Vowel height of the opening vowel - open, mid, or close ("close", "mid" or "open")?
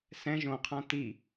mid